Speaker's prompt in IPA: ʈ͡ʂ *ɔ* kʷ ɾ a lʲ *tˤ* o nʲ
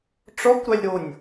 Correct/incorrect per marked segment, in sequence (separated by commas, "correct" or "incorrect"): correct, incorrect